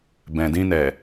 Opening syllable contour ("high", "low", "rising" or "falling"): low